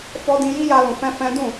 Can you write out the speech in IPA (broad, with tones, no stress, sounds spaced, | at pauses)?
f ɔ˧ d ĩ˧ j i˦ j a˧ l ũ˨ f ɛ̃˧ f ɛ̃˦ d ũ˦˨